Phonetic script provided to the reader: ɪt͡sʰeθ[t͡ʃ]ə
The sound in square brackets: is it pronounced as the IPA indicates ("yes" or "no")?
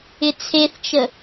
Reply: yes